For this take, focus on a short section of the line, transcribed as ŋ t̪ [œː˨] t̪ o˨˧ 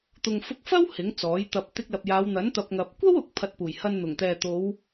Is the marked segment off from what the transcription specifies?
yes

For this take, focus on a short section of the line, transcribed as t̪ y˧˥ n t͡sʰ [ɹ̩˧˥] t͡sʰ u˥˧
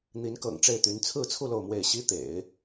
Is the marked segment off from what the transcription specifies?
yes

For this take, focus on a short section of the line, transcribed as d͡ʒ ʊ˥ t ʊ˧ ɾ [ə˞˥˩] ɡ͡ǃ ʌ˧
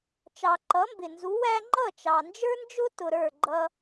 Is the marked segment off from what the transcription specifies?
no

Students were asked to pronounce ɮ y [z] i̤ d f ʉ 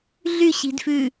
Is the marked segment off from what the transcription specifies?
yes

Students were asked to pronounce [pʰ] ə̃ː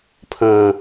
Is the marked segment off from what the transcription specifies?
no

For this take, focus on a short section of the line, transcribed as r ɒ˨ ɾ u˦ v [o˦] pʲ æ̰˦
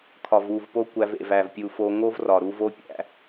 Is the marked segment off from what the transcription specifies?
no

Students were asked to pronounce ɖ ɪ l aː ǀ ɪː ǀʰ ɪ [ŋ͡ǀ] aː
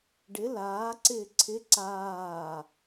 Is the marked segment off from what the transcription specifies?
yes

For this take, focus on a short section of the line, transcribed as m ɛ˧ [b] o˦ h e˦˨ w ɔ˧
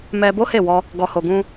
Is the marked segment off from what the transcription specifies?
no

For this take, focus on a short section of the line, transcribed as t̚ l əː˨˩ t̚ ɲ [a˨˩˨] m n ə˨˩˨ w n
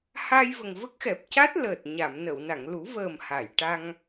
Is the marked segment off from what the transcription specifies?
no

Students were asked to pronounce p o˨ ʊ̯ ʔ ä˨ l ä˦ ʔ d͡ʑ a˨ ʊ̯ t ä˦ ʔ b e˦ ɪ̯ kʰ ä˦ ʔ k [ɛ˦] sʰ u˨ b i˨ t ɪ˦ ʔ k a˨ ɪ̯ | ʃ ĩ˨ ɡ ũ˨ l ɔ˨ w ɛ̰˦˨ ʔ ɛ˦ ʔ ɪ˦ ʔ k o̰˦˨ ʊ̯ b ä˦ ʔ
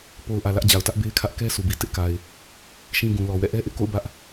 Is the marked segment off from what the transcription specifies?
no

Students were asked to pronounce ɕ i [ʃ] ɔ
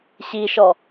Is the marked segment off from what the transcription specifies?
no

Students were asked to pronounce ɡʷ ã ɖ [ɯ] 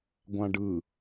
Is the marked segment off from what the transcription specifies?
no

